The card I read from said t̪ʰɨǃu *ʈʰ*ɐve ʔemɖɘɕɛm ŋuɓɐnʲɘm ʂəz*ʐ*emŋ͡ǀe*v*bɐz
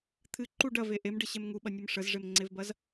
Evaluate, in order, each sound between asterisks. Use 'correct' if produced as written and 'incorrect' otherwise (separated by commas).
incorrect, correct, correct